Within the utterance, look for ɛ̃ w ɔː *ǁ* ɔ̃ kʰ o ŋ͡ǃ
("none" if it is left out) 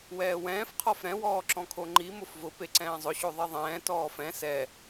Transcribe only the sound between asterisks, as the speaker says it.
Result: ǁ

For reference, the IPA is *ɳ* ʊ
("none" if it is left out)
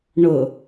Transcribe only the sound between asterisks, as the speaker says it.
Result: ɳ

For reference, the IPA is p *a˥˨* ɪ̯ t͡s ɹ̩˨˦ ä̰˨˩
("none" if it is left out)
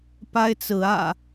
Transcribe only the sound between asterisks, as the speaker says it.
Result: a˦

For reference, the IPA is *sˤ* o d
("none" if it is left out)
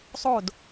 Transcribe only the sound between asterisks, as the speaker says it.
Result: sˤ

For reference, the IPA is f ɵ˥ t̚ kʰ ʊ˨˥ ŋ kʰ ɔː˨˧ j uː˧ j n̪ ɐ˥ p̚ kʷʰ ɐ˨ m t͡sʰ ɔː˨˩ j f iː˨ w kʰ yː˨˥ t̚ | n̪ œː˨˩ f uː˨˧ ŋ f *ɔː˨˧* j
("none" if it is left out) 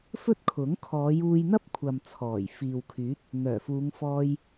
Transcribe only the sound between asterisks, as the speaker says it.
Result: ɔː˧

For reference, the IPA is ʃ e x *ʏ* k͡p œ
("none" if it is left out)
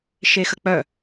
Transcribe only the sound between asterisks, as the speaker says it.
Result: ə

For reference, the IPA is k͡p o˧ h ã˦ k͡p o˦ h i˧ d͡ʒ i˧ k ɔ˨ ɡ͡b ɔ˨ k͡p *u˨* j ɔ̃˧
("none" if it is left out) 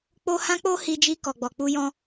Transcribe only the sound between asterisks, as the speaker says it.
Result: u˧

